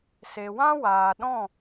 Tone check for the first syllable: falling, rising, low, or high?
low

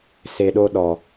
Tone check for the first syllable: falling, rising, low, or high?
low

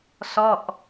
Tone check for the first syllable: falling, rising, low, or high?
falling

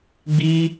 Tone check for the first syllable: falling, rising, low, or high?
high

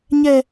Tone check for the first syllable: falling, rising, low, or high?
high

